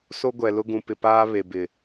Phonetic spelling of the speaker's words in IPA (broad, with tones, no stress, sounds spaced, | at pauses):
s o˦ ɡʷ ɛ˨ l ʊ˦ ɡ ũ˨ p ɪ˨ p aː˦ β e˨ b ɪ˨